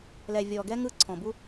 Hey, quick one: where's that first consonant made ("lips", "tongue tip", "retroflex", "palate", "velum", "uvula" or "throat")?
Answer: tongue tip